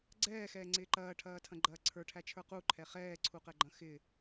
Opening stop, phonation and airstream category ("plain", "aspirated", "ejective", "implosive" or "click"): click